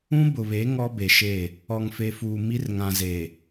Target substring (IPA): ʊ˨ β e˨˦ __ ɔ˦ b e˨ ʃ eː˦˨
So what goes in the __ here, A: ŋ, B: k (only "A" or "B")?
A